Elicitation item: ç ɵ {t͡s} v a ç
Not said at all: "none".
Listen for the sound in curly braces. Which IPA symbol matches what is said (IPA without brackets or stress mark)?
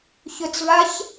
t͡s